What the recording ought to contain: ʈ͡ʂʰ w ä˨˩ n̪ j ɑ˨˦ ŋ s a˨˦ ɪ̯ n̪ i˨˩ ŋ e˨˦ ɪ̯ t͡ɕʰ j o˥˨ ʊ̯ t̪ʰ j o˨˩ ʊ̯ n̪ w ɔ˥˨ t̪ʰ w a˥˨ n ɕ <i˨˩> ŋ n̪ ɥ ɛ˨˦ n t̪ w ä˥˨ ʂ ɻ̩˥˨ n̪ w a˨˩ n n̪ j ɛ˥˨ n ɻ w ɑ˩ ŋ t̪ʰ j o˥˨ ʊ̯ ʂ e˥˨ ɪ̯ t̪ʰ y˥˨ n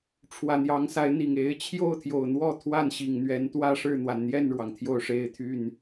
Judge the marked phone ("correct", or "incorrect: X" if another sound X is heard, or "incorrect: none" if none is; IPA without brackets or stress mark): correct